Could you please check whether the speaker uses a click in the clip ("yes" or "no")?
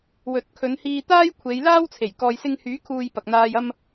no